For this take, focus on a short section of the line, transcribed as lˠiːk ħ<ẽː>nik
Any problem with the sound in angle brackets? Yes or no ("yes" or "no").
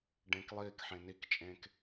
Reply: yes